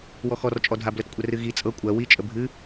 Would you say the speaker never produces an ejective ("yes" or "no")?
no